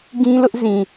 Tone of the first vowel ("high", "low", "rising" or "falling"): high